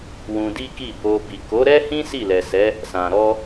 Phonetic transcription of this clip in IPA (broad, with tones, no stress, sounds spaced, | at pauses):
w ũ˧ d i˦ k i˦˨ b o˧ b i˨ k o˨˦ ɾ ɛ˦ h ĩ˦ s i˦˨ l ɛ˨ s ɛ˨˦ | s ã˨ ɾ ɔ˧